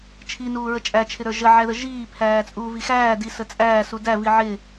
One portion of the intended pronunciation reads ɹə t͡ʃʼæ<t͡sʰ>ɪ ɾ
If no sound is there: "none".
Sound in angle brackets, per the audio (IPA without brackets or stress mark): t͡ʃʰ